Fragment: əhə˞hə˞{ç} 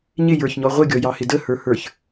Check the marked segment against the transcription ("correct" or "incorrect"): correct